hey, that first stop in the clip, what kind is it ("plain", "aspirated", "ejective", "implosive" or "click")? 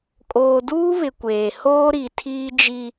ejective